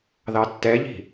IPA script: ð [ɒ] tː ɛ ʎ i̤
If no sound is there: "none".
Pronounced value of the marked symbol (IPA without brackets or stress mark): ɑ